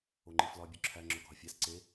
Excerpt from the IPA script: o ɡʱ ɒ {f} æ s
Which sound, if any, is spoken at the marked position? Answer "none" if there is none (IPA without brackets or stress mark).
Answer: fʲ